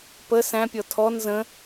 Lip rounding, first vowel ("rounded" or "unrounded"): unrounded